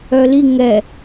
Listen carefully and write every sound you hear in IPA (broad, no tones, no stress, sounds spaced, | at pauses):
œ l i ŋ ɛ